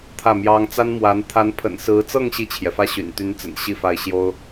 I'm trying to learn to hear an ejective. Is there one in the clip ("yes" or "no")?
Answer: no